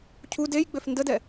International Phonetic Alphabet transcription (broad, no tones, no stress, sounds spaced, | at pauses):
cʰ u d e j ɡ͡b ø f n d ə d ɛ